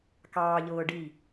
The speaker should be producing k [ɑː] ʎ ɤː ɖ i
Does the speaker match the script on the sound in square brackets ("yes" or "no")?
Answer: yes